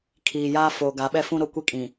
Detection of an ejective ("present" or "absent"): present